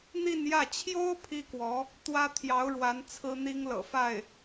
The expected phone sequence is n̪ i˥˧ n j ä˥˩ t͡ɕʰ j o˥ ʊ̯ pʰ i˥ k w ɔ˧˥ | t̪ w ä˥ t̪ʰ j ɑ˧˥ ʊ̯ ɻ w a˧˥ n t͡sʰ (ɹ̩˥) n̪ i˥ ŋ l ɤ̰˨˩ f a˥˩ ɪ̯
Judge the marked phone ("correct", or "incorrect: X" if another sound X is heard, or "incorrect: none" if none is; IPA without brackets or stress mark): correct